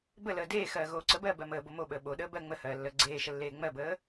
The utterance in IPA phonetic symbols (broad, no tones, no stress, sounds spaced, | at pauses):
b ə l əː d eː x ɜː ɣ oː ǀ ə b ɜː b ɜ m əː b o m o ɓ əː ɓ o ɗ əː b ɜ ŋ͡m ə h ɜː lː əː ɡ͡ǀ eː ʃ ə lː eː ŋ͡m ɜ b əː